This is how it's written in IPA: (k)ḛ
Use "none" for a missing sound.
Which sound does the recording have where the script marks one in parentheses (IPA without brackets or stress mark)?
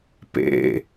p